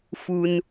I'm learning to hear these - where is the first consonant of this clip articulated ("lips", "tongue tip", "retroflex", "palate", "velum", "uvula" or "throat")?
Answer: lips